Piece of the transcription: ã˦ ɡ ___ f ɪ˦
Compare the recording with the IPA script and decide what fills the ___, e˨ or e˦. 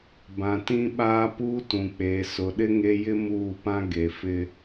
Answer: e˨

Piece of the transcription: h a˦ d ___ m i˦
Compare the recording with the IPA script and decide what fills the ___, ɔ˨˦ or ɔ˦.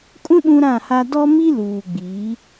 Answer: ɔ˦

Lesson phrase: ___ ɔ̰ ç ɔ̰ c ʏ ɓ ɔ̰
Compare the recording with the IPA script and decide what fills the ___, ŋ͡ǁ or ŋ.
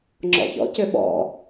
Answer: ŋ͡ǁ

